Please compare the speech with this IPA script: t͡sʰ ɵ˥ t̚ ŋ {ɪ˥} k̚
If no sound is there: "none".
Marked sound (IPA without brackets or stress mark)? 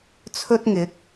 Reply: ɪ˨˥